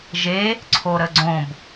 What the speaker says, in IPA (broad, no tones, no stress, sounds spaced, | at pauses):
ʒ e | ǀʰ o ɾ ə ɡ͡ǀ õ b